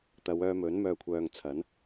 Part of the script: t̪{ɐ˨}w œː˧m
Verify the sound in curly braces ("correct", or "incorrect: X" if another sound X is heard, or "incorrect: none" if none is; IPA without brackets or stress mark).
incorrect: ɐ˨˧